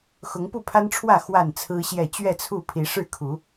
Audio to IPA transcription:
xʊ˨˦ŋpu˥˨pʰa˦nʈ͡ʂʰwä˥˨ xwa˥˨nt͡sʰɹ̩˦ɕjɛ˥˨ t͡ɕɥɛ˥˨t͡sʰu˥˨pʰi˨˦ ʂɻ̩˥˨kʰu˨˦

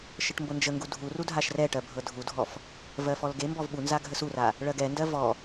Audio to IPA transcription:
ʃəʈmbɤnd͡ʒəŋɡu dʱuru dʱaʃrɛʈɜ bʱɤdʱudʱɔf | vɜfɔlɡembɔv ɓunza ɡʱəsura | ɭɜɡɛndɜ vɔ

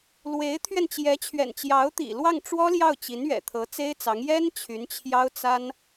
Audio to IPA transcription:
lwe˧˥ɪ̯t̪ʰɥɛ˧n t͡ɕjɛ˧˥t͡ɕʰɥɛ̰˨˩nt͡ɕjɑ˧˥ʊ̯t̪ḭ˨˩ lwɑ˥˩ŋʈ͡ʂwɔ˥ljɑ˥˩ʊ̯ t͡ɕi˧˥nɥɛ̰˨˩ t̪ʰɤ˧˥t͡se˥ɪ̯t͡sɑ˧˥ŋ jɛ˥n t͡ɕʰy˧˥nt͡ɕʰjɑ˥ʊ̯t͡sa˥n

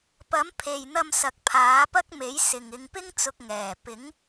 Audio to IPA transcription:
pɐ˨˥mpʰe˨jn̪ɐ˧m sɐ˨˥k̚pʰaː˨˥pɐ˥k̚me˨˥j sɪ˨ŋɪ˨˧ŋ pɪ˥ŋt͡sʊ˧k̚ ŋɛː˨˩pɪ˨˥ŋ

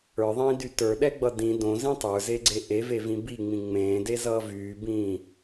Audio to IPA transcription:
ə˞ðˤĩːdy tə˞ɗɛɡ͡bʌ dĩ dõzĩ tˤə˞zeɡ͡ǀe ʔevevĩ biŋ͡mĩ ŋ͡mẽːdezʌː vyːbĩː

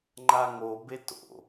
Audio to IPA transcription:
ŋ͡ǃaŋobe to̰

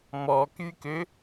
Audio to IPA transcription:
mɔkykø

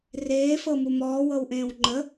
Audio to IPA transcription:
reːfɤ mumɔːwɤwʔẽːw ŋ͡ǃə

